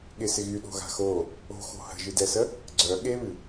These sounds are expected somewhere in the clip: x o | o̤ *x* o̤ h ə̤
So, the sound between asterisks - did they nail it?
yes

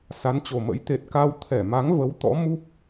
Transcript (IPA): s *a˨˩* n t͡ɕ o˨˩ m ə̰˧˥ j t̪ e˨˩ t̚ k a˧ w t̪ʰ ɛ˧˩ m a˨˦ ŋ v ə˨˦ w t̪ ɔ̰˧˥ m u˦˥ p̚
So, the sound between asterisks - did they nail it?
no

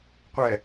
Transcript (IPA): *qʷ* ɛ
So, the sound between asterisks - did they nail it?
yes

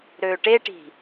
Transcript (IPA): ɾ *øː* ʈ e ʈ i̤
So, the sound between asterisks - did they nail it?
yes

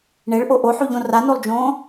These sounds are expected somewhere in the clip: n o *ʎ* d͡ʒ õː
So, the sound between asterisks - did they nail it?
no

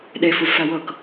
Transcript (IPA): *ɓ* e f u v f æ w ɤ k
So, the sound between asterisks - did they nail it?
no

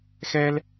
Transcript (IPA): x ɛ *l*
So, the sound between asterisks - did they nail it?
yes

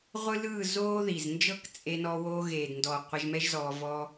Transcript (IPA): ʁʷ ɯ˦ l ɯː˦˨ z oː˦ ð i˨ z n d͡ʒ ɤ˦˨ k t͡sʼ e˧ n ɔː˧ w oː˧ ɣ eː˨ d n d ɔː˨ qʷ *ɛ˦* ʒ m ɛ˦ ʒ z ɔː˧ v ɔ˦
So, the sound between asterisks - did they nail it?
no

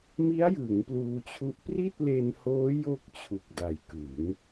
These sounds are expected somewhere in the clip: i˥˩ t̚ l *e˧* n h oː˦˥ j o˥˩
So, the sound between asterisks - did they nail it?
yes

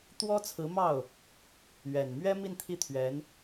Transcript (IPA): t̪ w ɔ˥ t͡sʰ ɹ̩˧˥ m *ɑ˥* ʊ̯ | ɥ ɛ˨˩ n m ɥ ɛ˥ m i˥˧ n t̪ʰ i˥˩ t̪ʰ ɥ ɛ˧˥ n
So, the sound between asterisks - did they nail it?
no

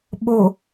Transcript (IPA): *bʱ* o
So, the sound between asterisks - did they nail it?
no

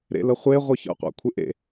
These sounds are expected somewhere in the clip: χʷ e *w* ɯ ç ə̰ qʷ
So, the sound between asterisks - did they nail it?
no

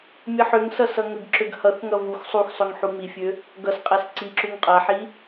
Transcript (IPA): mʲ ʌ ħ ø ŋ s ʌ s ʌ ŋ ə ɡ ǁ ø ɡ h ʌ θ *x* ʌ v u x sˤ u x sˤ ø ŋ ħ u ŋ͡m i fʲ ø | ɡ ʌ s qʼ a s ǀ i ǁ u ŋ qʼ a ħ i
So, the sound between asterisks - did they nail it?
no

